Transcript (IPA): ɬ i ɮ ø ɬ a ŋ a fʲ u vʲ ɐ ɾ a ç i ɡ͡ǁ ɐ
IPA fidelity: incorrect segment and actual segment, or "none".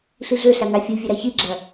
none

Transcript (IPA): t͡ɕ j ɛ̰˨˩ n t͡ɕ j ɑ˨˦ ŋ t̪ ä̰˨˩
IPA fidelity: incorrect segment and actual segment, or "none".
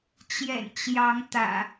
none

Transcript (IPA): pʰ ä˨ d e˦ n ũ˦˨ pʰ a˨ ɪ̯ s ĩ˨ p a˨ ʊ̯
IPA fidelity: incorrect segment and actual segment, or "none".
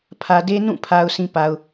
ɪ̯ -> ʊ̯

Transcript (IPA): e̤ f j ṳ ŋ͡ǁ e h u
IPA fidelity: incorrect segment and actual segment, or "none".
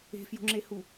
none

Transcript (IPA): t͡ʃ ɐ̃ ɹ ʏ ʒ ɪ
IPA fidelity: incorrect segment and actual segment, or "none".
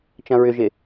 none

